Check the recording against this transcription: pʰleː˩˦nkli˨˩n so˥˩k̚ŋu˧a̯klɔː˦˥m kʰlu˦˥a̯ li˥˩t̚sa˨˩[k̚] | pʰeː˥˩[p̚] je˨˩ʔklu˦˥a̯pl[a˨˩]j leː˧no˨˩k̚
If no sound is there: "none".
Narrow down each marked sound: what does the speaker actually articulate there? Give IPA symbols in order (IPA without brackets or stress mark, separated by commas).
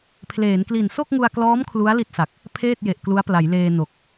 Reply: k̚, t̚, a˩˦